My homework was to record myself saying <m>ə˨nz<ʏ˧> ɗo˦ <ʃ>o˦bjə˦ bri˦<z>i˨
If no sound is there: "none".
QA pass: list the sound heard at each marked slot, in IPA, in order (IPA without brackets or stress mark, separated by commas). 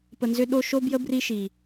p, ʏ˧, ʃ, ʃ